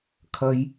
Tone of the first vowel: high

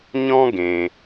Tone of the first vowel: high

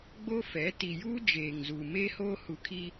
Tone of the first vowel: high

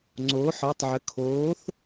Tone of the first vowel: rising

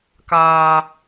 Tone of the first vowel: high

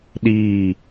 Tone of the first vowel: falling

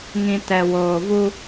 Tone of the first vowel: low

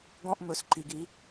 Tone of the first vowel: high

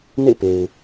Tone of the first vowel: falling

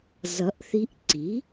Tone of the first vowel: rising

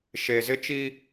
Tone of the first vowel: low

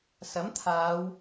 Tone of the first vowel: rising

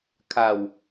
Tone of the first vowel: low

